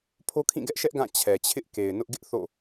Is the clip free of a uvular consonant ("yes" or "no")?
yes